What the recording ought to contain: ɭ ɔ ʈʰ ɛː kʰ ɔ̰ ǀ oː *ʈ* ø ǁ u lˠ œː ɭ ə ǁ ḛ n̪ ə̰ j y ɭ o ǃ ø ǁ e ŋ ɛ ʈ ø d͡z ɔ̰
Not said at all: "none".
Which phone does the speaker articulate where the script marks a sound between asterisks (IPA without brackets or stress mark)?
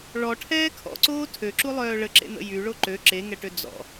tʰ